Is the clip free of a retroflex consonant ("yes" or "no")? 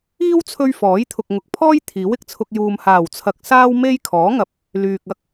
yes